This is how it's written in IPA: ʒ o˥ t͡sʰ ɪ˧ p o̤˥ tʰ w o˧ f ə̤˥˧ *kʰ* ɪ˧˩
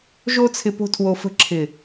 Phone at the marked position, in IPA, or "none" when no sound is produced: ǁʰ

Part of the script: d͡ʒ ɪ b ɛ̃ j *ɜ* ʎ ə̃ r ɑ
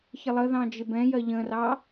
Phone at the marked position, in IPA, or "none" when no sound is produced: ɜ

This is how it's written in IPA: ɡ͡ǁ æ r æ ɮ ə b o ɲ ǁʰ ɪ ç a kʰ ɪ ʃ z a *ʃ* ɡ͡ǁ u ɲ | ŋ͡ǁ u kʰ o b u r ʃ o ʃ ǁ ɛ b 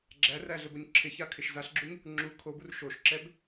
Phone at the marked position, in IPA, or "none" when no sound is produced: ɬ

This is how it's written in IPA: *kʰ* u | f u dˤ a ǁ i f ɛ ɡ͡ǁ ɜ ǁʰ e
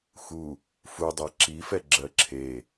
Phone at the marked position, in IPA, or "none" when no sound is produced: x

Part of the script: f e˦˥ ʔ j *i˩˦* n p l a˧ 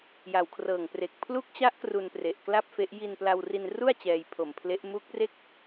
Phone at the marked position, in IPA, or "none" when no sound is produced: i˧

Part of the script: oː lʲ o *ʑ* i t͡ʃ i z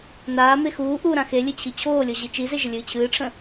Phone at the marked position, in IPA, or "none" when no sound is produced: ʑ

